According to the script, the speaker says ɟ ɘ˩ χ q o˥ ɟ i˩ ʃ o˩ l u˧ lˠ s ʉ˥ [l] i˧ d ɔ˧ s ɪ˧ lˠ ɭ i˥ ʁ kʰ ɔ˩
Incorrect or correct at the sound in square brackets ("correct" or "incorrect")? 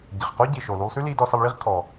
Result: correct